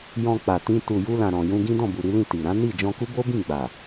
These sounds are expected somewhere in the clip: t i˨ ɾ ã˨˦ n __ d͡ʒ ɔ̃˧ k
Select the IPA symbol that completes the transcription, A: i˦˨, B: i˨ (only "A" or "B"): A